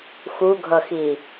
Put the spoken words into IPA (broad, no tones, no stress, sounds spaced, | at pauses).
x u ɡʱ ʌ x i